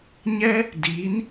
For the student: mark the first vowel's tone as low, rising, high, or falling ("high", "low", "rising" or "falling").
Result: high